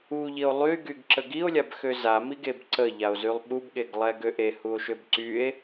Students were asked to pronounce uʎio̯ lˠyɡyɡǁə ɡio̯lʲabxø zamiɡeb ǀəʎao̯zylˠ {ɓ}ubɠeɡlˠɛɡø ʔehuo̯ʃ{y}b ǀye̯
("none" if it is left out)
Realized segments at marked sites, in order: ɓ, ø

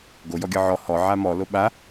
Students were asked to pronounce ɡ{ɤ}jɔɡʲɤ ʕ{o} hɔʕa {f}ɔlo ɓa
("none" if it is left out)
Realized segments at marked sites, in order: o, ɔ, m

